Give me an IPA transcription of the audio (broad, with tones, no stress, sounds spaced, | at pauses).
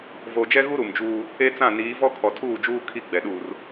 v o˨ d͡ʒ ɛ˦ ɣ u˦ ɾ u˨ m d͡ʒ uː˦ | e˦ t͡s ã˦˨ n iː˨˦ v ɔ˦ kʰ ɔ˨ tʰ uː˦˨ d͡ʒ uː˦ kʰ i˦ ɡ͡b ɛ˨ ɗ uː˨ r